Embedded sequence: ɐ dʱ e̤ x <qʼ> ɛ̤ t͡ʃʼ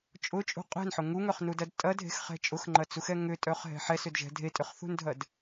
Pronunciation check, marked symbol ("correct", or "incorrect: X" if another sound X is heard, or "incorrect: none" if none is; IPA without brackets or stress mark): incorrect: χ